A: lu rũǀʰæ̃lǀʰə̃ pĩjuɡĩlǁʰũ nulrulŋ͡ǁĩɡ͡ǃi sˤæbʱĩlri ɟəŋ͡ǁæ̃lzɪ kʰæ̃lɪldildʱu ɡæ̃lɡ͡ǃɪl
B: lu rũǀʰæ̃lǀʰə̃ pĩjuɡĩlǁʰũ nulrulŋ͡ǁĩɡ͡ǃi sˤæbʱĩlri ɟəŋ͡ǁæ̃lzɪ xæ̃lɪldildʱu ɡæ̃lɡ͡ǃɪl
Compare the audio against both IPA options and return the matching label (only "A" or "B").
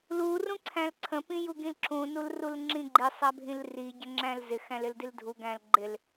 B